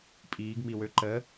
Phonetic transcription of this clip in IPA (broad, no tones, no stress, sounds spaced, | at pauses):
pʼ iː ɡ m i w ø ǃ ə